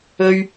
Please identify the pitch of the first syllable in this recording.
high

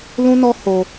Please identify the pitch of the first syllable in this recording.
high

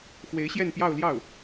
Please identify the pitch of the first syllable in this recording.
rising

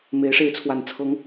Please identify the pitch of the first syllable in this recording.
rising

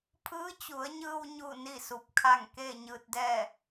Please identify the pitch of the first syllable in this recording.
rising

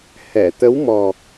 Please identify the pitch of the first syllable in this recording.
low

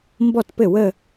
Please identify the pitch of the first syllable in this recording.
falling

